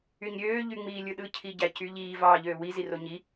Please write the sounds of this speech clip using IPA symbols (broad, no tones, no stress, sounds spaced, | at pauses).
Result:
y ɲ ɾʲ øː ʎ y ŋ͡m iː lʲ ɯ ɗ ɯ cʰ i ɟ æ c y ʎ iː v ɑː ʎ øː w i z i r o ɲ i